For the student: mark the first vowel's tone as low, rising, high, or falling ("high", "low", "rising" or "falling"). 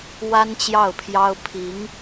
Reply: high